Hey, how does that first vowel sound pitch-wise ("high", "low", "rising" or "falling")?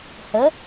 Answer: rising